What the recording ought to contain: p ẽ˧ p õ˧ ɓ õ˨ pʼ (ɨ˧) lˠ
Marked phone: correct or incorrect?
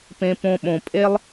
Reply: incorrect